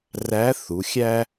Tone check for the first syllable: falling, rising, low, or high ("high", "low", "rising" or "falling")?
rising